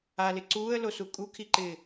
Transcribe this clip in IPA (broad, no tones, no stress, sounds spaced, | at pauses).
a l ɪ ǀ uː ə̯ l o s u kʼ u kʰ i ǃ ɪː